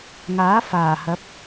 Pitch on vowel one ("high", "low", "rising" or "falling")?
rising